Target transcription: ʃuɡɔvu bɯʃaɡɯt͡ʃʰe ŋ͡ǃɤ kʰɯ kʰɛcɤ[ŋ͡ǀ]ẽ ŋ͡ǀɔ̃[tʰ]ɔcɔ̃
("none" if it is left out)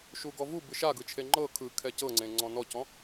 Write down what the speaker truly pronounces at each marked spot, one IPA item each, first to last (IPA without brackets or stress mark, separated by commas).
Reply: ŋ͡ǀ, n